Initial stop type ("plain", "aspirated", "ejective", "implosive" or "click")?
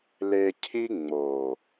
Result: aspirated